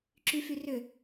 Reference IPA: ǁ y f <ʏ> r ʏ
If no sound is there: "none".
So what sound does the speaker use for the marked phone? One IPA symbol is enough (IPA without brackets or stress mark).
y